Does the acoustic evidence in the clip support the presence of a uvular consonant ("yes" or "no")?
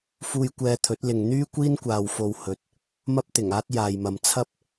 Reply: no